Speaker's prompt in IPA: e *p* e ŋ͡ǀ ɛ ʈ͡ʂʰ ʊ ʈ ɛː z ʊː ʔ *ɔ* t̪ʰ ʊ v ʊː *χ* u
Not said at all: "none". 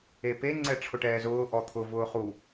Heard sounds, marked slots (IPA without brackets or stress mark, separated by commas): p, ɔ, χ